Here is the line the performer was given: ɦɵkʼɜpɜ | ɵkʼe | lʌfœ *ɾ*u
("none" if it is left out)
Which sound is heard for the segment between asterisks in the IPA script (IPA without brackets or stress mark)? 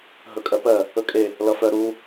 ɾ